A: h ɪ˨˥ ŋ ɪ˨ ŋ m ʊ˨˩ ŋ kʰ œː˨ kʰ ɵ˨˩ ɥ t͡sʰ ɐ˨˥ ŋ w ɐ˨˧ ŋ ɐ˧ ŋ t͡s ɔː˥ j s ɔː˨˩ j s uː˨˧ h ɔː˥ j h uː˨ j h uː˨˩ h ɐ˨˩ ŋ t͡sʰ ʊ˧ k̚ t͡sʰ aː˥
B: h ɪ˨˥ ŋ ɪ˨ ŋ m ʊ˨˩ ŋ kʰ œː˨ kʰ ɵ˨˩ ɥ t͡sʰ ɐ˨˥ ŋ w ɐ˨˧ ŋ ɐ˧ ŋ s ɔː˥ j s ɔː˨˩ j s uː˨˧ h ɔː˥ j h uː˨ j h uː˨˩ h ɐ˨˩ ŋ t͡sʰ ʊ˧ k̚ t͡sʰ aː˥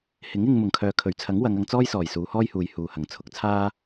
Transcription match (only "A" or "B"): A